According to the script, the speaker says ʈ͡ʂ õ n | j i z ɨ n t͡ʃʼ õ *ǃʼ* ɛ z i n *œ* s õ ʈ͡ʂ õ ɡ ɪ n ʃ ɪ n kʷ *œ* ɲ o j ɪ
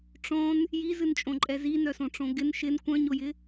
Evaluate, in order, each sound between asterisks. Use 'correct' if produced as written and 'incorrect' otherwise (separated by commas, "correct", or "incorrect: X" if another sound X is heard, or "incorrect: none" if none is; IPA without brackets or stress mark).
correct, correct, incorrect: œ̃